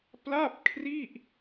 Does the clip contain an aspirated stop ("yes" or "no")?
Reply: yes